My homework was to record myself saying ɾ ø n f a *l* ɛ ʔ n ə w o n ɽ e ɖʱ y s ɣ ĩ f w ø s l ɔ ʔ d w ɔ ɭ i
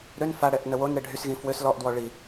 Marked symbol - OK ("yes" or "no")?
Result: no